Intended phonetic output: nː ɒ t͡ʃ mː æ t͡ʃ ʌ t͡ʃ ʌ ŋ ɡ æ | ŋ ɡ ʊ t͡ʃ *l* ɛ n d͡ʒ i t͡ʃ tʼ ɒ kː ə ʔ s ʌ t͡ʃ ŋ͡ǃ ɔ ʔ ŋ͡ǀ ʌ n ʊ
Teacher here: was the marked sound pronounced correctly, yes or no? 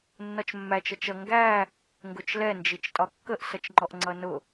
yes